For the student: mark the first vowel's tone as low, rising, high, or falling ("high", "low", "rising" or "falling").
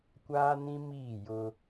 high